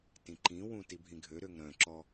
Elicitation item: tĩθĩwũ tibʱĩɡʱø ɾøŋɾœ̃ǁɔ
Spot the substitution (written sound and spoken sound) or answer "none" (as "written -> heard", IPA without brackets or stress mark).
θ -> ǃ